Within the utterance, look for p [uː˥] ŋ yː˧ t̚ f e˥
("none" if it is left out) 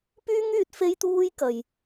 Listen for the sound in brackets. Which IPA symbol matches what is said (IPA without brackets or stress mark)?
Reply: yː˥